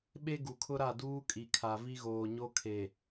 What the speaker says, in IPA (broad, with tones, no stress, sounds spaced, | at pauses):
ɓ e˦ ɡ u˨ kʰ ʊ˦ ɾ a˦˨ d uː˦ kʼ i˨ kʰ a˨ v i˦ ɣ oː˨ ɲ o˦ kʰ e˨